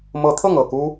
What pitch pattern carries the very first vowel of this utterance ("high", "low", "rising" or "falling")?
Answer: rising